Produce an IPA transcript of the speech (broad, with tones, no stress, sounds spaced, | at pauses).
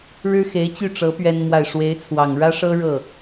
ɻ ɻ̩˥ x e˧˥ ɪ̯ t͡ɕ y˥˩ ʈ͡ʂ ɤ˧˥ p ɥ ɛ˥ n m w a˥˩ ɪ̯ ʂ w e˧˥ ɪ̯ t͡sʰ w ɑ˨˩ ŋ ɻ ä˥ ʂ ɤ˥ ɻ ɤ˥˩